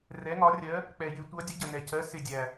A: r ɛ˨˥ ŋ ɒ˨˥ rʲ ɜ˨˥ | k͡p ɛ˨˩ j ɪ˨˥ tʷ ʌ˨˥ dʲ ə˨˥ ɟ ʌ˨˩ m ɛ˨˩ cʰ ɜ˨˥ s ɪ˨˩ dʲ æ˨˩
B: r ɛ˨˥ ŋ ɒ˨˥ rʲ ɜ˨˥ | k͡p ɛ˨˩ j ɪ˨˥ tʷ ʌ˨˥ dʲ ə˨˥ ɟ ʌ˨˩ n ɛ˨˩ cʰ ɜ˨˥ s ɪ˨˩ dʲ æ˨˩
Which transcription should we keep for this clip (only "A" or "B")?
B